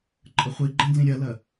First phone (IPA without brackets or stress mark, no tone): ǃʼ